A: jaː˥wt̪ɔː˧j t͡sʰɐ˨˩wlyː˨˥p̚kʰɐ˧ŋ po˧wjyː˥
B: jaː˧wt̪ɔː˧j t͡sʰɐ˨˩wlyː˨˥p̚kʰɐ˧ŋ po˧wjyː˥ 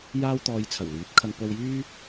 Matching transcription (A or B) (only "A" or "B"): A